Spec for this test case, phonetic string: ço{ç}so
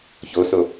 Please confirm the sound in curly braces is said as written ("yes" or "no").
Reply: no